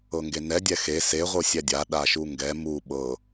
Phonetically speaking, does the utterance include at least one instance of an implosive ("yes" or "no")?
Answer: yes